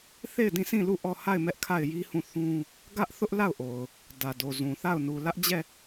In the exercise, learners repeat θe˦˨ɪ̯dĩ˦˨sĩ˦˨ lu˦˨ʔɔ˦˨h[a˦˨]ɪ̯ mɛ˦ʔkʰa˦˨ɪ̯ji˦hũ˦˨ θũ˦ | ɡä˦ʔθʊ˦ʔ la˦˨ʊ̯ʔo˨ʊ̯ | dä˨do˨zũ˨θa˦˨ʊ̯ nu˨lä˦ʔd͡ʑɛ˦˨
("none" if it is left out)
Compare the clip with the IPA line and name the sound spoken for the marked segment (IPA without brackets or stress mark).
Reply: a˦˨